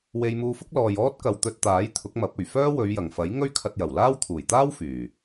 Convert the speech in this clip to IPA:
we˧jmuː˧fʊ˥k̚ lɔː˨jɔː˥t̚kɐ˨w t̪ɵ˨t̚t̪aː˨˥j t̪ʰʊ˨˥k̚mɐ˨˥p̚ɵ˨˩ɥ fœː˥wɵ˨˧ɥjɐ˨˩ŋfɐ˨˥j ŋɵ˥ɥkʰɐ˧t̚jɐ˨˩wlaː˥w t̪ʰuː˨˩jt̪aː˥w fyː˨˩

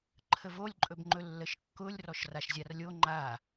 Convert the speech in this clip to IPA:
ǃʰəvolʲǃʼɵbŋ͡ǃɵ lːəʃkːʊlʲrɔʃ raʃzʲarlʲo ŋ͡ǃa

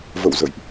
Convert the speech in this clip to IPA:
və̰˧˨w zə̰˧˨jʔ

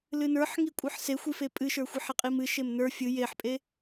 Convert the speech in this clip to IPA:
lɨnə˞ħ ŋikʷʼə˞ħsexʷi fepʼɨʃə˞ xʷiħɛqʼimɨ ʃemnə˞ fʲɨ jeħpʼe

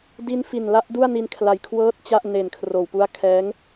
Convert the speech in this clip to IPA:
di˦˥n fi˨˩nla˦˥ʔdu˥˩a̯ni˧n kʰla˨˩j kʰwɤː˥˩t̚t͡ɕa˥˩ʔ ne˨˩n kʰroː˨˩wpu˦˥a̯kʰɛː˦˥ŋ

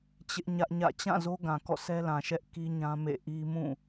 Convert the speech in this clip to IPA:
t͡ɕɪ˦ʔɲä˦ʔɲä̰˦˨ t͡ɕã˦˨zo˦ɡã˨ kɔ̰˦˨sɛ˦lã˨ʃɛ˦ʔ ki˦ ɲã˦mḛ˦˨ʔi˦ mũ˦˨

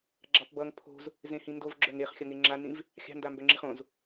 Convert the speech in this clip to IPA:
ɡ͡ǁɑpbʌŋ pʰo̤z | zẽhĩndov ɡ͡ǁœŋeχxʲʌŋe ŋ͡ǁanĩv | xʲɑ̤ndambœŋ͡ǁiχ õz

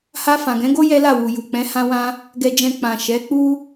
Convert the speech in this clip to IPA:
ha˧fã˨ɡɛ̃˨˦ɡo˦ jɛ˦la˦˨wu˨ ju˨k͡pɛ̃˨˦ hã˧wã˧ | ɡɛ˧d͡ʒɛ̃˧ k͡pã˨ ʃɛ˨˦k͡pu˦

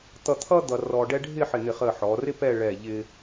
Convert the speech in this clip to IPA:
t̪ʌ˧t̪ʰʌ˥ d̪ʌ˧ rɔ˧ɖɛ˥ ɖʱɪ˥˧ħɪ˧˩n̪ɪ˧˩χə˧˩ ħɔ˩˧rɪ˥pɛ˥˧ ɭɛ˧˩ ʎɪ˧

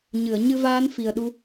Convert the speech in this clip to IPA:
ɲɨ˨˩˨ə̯ ɲɨ˧vaː˧˥nfi˨˩ə̯ ɗu˧

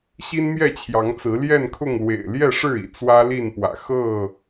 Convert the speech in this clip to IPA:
ɕi˦nmjɛ˥˨t͡ɕʰjɑ˨˦ŋt͡sɹ̩˨˦ ljɛ˥˨nkʰʊ˥˨ŋ lwḛ˨˩ɪ̯ljɛ˥˨ʂɻ̩˥˨ḭ˨˩ t͡swä˦li˥˨npwä̰˨˩ xɤ˥˨

